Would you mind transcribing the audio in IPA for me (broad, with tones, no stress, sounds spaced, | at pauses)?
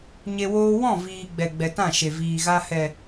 ɲ e˧ w oː˦ w ɔ̃˦˨ v iː˨ ɡ͡b ɛ˨ ɡ͡b ɛ˨ t ã˦˨ ʃ e˨ v iː˨ ɣ a˧ h ɛ˨